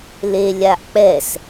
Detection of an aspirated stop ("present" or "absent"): absent